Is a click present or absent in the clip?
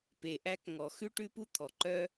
present